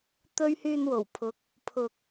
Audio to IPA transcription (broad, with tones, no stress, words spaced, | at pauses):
t̪ɵ˥ɥ hyː˧nwo˨˩wpʰʊ˨˥k̚ | pʰʊ˨k̚